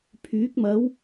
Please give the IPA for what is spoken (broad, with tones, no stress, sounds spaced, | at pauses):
pʰ yː˨˥ k̚ m ɐ˨˥ w